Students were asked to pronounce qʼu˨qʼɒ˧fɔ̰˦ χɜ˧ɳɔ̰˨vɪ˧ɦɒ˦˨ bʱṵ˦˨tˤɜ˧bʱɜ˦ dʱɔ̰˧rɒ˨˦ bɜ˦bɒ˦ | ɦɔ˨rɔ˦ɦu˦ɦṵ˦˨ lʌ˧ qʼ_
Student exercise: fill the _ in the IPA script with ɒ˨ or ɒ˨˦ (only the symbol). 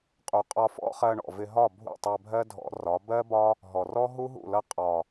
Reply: ɒ˨